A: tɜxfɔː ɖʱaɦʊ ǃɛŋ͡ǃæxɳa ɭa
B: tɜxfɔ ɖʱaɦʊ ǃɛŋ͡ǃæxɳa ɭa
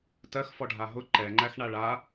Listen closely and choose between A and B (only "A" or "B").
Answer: B